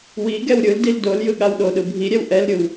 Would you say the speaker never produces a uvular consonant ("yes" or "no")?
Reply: yes